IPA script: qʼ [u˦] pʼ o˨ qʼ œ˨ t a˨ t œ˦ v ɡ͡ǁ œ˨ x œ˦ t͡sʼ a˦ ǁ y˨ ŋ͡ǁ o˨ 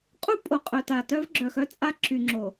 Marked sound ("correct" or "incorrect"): correct